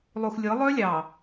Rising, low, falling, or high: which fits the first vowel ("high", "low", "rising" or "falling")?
low